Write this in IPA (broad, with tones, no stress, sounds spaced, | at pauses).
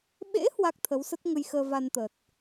ɓ ḛ˧˥ h w a˦˥ k̚ t̪ʰ ə˨˦ w s ə˦˥ t̚ ŋ ə˧ j x əː˧ v a˧ n t̪ ə˨˩ t̚